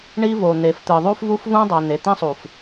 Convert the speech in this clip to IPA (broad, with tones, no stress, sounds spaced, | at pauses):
ɳ i˦ v o˨ n̪ e˨ f t̪ ɯ˨ ðˤ u˦ f v u˦ f v ũ˦ dˤ a˨ n̪ e˨ t̪ ĩ˦ sˤ u˨ f